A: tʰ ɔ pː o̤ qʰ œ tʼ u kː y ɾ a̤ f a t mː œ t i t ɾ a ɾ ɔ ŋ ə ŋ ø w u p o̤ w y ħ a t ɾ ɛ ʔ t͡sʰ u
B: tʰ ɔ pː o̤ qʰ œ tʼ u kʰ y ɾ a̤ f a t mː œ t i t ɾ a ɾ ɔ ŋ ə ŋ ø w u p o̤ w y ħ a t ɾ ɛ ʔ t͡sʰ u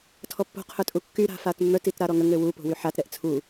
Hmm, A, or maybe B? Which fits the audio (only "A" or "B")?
A